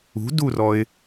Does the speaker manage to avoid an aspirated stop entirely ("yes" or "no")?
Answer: yes